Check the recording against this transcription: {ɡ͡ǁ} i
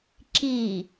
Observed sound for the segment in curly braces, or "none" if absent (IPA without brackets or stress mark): ǁ